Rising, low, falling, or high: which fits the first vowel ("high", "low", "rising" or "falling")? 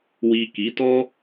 low